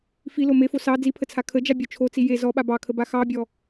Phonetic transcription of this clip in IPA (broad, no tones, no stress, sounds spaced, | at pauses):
f i l o m e f o s ɑ d͡z i pʰ ə t͡sʰ a kʰ ə d͡ʒ a bʲ ɔ t͡ʃʰ o t͡s i j e z ɔ ɓ a b ɑ kʰ ə b a x ɑ bʲ ɔ